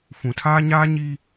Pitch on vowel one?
low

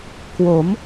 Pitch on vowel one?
rising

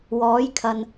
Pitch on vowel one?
rising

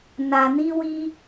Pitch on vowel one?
low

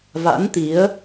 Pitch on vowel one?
rising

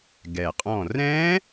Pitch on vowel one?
low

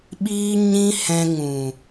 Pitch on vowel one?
high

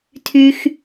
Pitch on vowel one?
high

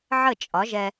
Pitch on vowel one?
falling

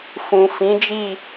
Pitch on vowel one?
low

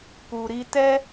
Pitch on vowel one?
low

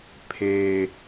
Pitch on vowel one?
low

